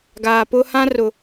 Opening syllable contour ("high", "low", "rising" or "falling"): low